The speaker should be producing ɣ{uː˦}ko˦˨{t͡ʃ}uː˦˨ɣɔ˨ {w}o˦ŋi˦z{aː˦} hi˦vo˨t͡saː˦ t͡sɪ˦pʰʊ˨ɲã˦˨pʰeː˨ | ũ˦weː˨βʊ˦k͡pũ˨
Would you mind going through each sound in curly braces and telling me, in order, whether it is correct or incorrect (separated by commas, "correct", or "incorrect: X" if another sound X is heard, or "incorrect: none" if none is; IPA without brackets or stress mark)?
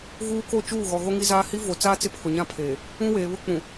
correct, correct, incorrect: ɣ, correct